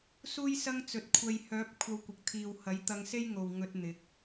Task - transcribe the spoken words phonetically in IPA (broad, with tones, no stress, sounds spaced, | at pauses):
s uː˥ j s ɐ˥ ŋ t͡s ɵ˨ t̚ kʷʰ ɐ˨ j h œː˨˥ p̚ kʷʰ ɐ˧ w kʷ ɪ˨ k̚ t̪ʰ iː˨ w h ɐ˨˥ j t̪ ɐ˧ ŋ s e˥ j ŋ o˨ w ŋ ɵ˧ t̚ n̪ ɪ˨˥ k̚